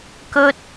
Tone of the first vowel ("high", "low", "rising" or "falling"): high